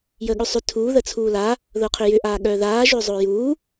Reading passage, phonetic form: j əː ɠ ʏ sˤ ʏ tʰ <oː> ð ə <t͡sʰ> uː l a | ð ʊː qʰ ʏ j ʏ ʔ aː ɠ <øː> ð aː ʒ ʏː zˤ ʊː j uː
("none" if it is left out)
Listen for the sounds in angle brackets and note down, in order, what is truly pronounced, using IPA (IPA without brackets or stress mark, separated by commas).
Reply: uː, t͡sʰ, œː